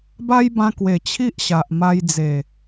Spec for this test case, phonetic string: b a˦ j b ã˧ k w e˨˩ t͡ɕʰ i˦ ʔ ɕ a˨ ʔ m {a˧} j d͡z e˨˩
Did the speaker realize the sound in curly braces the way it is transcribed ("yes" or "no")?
yes